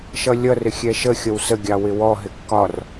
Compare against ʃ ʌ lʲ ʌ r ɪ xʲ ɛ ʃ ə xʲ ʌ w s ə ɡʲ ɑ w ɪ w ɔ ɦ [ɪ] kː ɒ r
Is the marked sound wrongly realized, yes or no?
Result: no